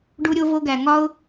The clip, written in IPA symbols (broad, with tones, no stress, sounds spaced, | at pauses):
ɖ u˧ ɾʲ o˧ v o˧ ɡ æ˨ ŋ ɒ˦ ʊ̯